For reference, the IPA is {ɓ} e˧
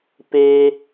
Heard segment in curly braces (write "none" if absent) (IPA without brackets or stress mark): p